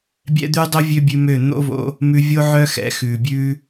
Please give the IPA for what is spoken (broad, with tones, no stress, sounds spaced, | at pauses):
bʲ ɛ̰˦ d̪ ʉ˦ dˤ ɵ˦ vʲ ø˦ bʲ ʉ˧ m ø˦˨ n̪ o̰˦ v o̰˧ | m ʉ˧ vʲ o˦ ʕ œ˦ x ɛ̰˨˦ x ʉ˨ bʲ ʉ˦